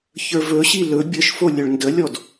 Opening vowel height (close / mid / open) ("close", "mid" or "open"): mid